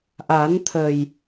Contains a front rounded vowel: no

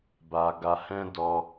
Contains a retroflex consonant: no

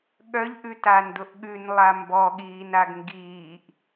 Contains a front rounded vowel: yes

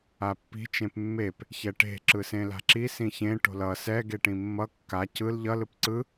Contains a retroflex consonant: yes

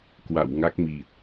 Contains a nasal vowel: no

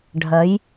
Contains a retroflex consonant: yes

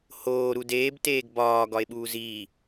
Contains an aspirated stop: no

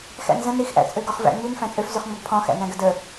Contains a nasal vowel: yes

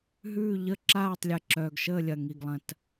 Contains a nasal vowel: yes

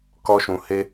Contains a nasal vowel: yes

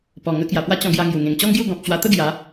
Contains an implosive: no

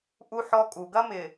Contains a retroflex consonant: no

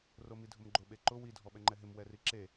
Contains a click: yes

